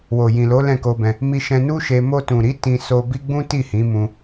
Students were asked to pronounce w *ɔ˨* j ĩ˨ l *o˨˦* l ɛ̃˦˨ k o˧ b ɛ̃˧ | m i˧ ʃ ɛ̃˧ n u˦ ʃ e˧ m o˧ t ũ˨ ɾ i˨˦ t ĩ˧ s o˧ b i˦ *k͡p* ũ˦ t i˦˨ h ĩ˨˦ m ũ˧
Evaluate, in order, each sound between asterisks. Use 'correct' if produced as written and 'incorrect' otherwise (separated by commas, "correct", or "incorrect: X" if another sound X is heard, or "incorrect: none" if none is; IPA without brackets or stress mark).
incorrect: o˨, correct, incorrect: ɡ͡b